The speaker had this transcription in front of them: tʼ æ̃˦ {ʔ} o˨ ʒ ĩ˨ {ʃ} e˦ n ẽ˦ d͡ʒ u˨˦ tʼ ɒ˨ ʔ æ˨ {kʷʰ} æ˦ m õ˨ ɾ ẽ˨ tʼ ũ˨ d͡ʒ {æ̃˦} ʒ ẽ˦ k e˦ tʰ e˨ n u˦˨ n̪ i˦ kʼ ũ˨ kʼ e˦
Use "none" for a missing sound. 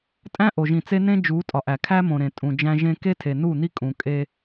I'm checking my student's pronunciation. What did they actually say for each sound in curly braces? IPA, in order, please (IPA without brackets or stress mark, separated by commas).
ʔ, t͡s, kʰ, æ̃˦